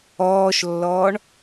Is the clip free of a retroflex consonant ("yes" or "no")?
no